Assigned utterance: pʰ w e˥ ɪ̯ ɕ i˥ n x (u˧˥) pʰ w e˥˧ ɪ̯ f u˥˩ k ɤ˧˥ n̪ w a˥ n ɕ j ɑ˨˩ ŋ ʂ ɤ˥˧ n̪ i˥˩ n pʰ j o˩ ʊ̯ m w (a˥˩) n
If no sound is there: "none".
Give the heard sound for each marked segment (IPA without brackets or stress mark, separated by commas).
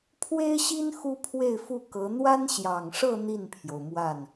u˥, a˥˩